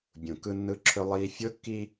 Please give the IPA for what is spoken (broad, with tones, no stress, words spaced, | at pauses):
bʲũ˨ kɯ˦nːɯ˦ǁʰɵ˦ lˠiː˦ fʲʊː˦kːi˦